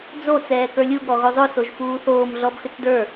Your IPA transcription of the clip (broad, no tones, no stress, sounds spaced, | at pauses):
d͡z o t͡s ɛː k ə˞ lʲ u ɠ ɔ ɣ o zˤ o s o ʒ f uː θ oː m ɮ ɔ b x ʏ t͡s d ə˞